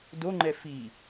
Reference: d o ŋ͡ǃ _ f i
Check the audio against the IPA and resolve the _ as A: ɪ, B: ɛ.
B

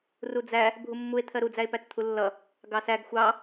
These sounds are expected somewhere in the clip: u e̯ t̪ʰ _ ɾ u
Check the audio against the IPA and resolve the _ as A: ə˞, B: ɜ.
B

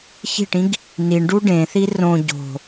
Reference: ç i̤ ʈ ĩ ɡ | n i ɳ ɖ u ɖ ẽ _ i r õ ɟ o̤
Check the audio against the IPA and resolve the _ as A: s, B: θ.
B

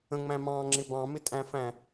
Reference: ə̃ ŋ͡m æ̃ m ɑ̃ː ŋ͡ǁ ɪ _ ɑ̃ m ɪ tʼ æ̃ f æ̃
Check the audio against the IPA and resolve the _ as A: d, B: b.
B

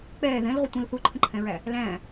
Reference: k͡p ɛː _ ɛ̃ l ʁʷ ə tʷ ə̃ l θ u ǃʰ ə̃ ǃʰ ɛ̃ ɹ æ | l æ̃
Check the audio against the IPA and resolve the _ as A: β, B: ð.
B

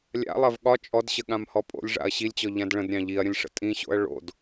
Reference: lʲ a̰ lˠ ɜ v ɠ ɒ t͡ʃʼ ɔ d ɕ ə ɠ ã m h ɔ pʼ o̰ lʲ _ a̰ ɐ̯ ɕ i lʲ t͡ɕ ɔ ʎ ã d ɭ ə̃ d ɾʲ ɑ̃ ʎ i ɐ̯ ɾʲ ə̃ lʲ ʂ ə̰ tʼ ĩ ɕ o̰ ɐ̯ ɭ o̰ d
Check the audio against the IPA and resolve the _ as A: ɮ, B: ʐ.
B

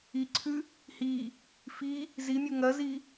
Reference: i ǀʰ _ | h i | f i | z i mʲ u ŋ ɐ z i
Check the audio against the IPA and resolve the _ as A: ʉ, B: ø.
A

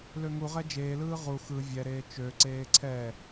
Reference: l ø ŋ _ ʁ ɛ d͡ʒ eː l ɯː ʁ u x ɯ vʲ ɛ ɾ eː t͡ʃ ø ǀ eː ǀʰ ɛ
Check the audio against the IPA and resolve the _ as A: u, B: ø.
A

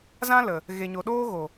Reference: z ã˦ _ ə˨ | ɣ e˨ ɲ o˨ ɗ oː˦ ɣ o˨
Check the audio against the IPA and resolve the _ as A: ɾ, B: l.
B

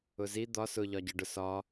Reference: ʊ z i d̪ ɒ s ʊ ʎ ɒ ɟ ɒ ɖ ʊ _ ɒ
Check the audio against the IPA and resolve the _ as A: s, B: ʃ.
A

